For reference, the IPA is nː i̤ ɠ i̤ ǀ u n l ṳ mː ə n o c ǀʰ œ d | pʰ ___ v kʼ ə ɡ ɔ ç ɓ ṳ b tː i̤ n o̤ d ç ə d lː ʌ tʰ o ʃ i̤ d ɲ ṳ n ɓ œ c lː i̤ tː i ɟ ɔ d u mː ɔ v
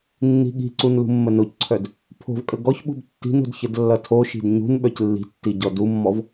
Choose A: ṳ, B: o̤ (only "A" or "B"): B